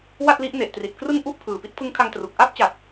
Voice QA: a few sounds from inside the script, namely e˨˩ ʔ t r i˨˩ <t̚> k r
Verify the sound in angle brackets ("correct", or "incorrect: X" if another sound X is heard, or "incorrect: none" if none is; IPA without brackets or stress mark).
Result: correct